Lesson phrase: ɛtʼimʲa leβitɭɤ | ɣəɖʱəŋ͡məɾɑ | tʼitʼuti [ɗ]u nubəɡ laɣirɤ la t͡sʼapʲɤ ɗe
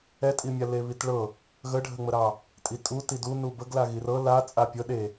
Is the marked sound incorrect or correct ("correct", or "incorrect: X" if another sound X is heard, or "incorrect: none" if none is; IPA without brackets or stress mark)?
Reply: incorrect: d